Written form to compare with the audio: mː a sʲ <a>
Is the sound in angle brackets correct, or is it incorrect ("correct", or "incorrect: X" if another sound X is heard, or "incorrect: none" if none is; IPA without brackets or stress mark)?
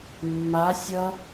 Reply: incorrect: ʌ